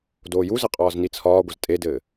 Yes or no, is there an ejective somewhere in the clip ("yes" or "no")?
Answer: yes